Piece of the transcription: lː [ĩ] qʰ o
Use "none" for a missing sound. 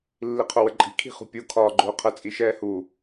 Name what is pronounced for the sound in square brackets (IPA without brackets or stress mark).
i